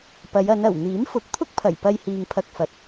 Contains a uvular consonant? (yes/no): no